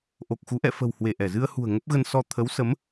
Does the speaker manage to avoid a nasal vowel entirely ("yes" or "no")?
yes